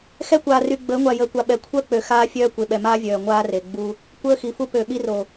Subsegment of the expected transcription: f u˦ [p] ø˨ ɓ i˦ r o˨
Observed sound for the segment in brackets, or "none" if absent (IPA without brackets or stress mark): p